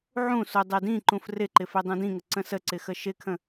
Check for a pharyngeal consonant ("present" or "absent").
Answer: present